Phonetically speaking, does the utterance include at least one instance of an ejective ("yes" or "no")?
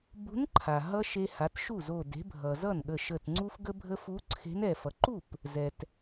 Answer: no